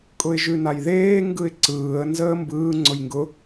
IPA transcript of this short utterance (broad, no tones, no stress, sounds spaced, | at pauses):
kʼ ʊ ɪ̯ ʒ ʉ n a j ð eː ŋ ɡ ɯ ɪ̯ ǀ ɯː ə̯ n z əː m b ɯː ŋ͡ǀ ʊ j ŋ ɡ ʊ